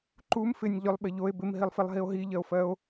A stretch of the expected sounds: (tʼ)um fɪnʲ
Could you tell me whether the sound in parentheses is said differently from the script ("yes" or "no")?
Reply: yes